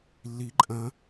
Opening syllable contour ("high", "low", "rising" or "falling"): rising